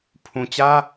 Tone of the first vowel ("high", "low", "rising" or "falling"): low